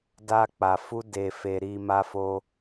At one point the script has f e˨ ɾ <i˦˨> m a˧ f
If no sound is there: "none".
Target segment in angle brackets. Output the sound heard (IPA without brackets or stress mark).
i˨